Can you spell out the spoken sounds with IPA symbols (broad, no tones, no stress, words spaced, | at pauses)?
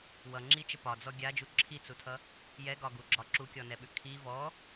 wʌŋ͡ǁit͡ʃə pɒd͡zɔ ɡʲad͡ʒu ǁʰit͡sutʰʌ | jɛɡɒɡuɡ͡ǁɒ ǁukʲɔnɛɓʉ kʰi vɔ